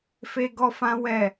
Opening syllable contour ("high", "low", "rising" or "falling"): high